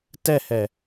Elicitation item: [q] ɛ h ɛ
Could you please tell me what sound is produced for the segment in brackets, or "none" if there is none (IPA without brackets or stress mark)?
t